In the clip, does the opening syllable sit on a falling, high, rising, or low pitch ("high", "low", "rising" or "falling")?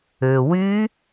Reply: low